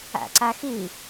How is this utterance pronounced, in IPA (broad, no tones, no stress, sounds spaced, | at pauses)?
æ̰ ǀ æ x i